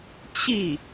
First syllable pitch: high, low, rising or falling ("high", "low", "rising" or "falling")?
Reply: falling